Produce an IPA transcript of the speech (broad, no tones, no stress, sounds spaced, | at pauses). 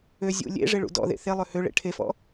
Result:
ø zʲ ṵ lʲ ḛ ʐ e ɭ ṵ d ɔ̰ ð ḛ θ e lˠ ø h ø ɭ ḛ ʈʰ e f ɔ̰